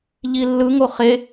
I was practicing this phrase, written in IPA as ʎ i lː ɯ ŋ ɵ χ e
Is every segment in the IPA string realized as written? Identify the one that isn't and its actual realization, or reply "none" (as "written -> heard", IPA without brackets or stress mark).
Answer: ɵ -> o